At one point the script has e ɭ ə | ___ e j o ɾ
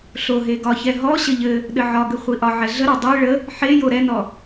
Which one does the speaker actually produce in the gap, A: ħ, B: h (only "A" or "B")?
A